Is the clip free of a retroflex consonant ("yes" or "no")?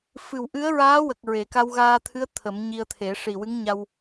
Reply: no